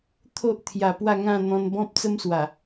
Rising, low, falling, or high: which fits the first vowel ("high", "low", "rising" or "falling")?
high